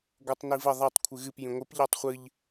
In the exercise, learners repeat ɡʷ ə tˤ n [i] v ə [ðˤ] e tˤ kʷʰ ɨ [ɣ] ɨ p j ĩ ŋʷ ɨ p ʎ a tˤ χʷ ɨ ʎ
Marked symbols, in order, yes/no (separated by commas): yes, yes, yes